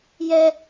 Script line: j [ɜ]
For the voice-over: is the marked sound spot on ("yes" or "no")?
no